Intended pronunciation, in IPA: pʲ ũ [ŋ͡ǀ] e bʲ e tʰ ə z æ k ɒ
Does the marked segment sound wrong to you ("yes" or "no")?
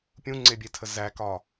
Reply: no